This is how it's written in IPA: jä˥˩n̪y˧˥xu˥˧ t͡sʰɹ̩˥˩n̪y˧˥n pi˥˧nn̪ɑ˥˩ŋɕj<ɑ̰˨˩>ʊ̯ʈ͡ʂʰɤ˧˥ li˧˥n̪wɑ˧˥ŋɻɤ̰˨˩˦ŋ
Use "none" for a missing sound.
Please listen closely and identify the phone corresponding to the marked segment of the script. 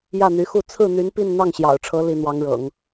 ɑ̰˨˩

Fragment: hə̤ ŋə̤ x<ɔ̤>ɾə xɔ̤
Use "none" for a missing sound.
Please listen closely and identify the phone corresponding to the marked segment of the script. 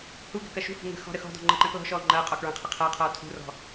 ɔ̤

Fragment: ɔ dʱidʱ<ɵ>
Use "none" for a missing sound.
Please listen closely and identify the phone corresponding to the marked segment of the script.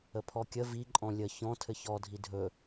ɵ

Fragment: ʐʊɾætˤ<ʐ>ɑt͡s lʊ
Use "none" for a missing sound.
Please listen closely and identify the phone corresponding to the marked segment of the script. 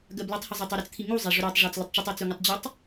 ʐ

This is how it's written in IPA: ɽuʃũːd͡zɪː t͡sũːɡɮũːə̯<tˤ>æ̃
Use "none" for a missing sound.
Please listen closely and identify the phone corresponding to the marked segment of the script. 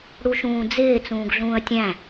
tʲ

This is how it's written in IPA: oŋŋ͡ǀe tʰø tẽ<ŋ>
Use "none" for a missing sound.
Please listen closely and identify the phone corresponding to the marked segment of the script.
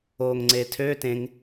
ŋ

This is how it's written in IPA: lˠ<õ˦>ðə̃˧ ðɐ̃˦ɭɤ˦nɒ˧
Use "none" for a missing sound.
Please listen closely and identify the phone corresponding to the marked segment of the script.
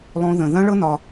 õ˦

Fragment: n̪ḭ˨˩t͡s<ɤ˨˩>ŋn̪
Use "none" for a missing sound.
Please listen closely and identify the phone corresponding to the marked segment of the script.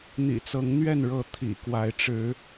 ɤ˨˦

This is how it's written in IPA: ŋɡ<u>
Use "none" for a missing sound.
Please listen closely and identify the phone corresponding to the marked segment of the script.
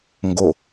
o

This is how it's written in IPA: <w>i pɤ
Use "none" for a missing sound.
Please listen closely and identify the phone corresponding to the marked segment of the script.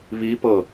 β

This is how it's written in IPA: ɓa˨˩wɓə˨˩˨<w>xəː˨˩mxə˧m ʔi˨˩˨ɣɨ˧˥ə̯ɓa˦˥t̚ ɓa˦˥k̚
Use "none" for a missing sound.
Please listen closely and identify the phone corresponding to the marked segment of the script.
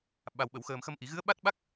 w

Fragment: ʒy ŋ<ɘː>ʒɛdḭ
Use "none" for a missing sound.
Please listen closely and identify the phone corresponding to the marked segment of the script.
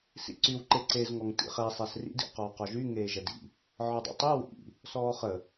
eː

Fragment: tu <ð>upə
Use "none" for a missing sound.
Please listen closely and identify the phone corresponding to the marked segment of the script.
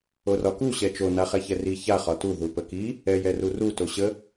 ð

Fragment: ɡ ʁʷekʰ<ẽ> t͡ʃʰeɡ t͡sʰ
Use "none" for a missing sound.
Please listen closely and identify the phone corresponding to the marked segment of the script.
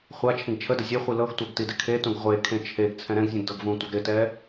ẽ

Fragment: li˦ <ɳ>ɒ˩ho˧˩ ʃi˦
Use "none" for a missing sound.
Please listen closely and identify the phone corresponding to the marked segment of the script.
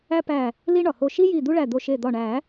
ɳ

